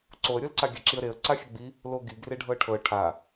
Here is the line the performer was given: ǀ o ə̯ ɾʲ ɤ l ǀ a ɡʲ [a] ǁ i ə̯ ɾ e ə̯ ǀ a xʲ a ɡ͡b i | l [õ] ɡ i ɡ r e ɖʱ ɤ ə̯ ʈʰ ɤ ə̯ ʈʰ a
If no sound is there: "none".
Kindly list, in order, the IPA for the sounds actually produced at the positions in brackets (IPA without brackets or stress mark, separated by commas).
a, o